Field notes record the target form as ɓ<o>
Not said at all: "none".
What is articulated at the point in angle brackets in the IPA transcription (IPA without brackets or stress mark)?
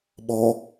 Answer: ɔ